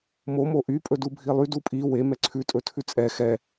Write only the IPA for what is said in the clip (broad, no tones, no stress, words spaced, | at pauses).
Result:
mo moʔy pʼɵdubʱilˠy dupʼi we mɛǀʰʉ tʼɵtʰʉt͡sʼɛ xɛ